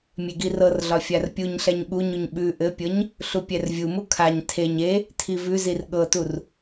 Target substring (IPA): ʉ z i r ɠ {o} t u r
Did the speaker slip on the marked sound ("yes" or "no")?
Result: yes